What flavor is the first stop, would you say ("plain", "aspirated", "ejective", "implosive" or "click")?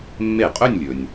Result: ejective